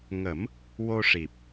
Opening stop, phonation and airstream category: plain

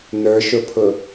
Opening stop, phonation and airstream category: aspirated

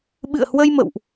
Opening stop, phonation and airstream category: implosive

